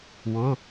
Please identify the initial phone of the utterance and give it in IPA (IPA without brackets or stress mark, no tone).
w